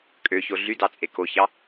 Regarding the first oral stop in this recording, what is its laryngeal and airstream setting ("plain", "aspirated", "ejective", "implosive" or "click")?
ejective